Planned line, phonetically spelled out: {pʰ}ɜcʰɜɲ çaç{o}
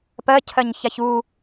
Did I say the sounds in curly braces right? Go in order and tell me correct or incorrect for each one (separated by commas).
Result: incorrect, incorrect